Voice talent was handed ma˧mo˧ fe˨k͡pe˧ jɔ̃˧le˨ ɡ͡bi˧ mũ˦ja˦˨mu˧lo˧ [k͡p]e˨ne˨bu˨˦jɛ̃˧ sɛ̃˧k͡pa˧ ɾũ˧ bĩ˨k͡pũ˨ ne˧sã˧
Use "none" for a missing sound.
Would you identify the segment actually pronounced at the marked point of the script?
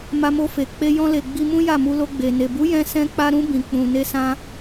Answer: ɡ͡b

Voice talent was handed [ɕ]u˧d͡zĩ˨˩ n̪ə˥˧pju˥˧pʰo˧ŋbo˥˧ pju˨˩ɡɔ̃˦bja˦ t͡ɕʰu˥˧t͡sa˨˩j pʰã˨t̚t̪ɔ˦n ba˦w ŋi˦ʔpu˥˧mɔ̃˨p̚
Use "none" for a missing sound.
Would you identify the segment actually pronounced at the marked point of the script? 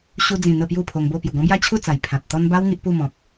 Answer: ɕ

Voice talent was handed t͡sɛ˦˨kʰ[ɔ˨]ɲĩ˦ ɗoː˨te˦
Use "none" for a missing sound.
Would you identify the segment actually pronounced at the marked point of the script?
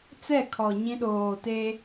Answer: ɔ˨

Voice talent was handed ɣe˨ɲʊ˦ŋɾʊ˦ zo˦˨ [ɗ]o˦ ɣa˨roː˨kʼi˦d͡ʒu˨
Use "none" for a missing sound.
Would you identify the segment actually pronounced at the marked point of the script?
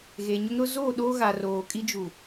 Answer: ɗ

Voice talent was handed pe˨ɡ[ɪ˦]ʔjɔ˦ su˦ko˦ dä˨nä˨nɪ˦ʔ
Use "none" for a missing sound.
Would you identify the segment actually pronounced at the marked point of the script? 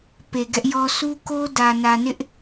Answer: ɛ˦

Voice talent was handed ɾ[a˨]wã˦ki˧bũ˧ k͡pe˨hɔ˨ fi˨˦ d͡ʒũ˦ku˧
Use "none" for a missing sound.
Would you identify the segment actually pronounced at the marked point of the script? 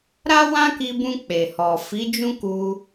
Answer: a˦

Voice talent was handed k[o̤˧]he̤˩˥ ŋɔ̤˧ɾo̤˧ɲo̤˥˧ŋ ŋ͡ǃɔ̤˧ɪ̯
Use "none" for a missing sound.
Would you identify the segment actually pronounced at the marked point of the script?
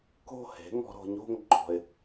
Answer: o̤˥˧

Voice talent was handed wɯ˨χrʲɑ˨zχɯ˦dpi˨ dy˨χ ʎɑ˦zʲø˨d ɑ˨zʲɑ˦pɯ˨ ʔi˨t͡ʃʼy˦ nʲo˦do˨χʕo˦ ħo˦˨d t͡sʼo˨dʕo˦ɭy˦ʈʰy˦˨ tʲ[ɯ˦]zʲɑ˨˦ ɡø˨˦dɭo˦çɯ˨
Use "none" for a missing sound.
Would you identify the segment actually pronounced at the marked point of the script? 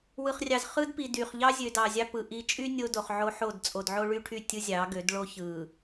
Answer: ɯ˦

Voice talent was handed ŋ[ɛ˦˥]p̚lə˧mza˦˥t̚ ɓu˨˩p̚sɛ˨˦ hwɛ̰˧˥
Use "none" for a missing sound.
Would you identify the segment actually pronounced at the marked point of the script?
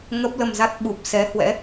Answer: ə˦˥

